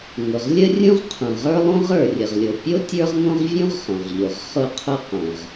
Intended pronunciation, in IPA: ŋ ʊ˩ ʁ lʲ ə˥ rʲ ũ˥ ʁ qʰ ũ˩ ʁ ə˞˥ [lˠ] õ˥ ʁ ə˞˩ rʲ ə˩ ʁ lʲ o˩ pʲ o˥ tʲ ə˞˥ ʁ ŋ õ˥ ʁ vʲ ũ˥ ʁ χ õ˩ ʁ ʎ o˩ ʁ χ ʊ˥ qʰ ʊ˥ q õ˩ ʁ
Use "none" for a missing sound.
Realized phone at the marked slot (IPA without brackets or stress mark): lˠ